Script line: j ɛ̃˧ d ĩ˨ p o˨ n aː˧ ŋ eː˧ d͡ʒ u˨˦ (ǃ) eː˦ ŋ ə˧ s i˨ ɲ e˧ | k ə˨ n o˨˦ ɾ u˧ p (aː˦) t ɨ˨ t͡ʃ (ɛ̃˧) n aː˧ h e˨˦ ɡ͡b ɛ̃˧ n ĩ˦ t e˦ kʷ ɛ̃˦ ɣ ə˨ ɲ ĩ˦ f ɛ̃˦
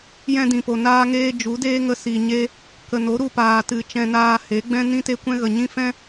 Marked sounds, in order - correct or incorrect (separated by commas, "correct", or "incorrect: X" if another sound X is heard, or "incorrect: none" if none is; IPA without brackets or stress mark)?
incorrect: d, incorrect: aː˨, correct